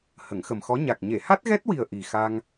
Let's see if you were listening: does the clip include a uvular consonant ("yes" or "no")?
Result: no